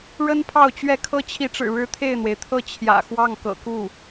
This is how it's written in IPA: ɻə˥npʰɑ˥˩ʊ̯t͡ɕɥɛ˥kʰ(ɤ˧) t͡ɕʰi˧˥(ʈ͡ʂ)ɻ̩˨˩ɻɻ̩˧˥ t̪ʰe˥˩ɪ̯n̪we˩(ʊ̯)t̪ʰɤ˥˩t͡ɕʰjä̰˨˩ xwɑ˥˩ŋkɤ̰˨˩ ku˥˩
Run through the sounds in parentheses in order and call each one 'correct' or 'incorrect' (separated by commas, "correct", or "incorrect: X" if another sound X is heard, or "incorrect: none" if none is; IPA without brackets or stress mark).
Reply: incorrect: ɤ˥, correct, incorrect: ɪ̯